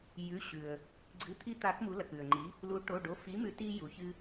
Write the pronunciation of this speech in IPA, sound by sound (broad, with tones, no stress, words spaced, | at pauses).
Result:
jʉ˩˧˩ɕʉ˩ə̯ | ɡ͡ǀɨ˩˧˩t̪ʰi˧t̪a˨˩˦k mu˩˥lɐ˩kʉ˩ə̯ŋ͡ǃi˩˥ | lu˩˥ ʈo˩˧˩ɖo˩˧˩fi˩˥mʉ˨˩˦ ti˧ ju˩çɨ˧